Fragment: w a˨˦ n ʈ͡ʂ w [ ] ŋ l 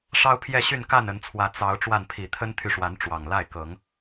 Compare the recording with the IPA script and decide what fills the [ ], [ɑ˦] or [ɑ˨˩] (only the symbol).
ɑ˨˩